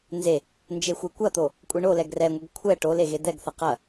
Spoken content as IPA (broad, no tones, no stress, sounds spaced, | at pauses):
n z e | n d͡ʒ e xʷ e kʷ ɐ t̪ o | kʷʼ e ɳ o l ɛ ɡ r ɛ ŋʷ ɛ ɡ kʷʰ ɛ ʈ o l e ɣ e d̪ ɛ ɡ θ ɐ q ɐ